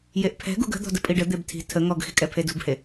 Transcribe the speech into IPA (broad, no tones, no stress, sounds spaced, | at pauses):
j e ʔ pʰ ɛ̤ ɡ ṳ ɡ ə̤ d̪ ɔ̤ d ə pʼ i ɖ ə d̪ e b tʰ i̤ tʰ ə ŋ ɔ ɡ x i̤ kʼ ɛ pʰ e d ṳ b h e